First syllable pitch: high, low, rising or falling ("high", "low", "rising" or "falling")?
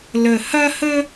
low